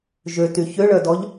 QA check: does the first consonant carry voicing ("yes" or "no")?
yes